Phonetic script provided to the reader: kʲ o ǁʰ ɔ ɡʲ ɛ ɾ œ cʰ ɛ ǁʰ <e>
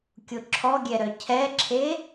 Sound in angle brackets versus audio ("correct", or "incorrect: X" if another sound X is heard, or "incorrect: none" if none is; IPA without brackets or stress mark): correct